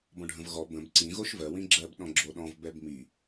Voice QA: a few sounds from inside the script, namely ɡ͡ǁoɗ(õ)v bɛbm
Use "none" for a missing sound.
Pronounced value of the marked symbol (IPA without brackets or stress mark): ɔ̃